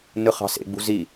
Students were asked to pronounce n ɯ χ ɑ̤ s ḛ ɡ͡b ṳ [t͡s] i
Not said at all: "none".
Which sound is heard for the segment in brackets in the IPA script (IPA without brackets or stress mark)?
z